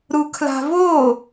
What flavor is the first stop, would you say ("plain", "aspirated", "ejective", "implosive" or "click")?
aspirated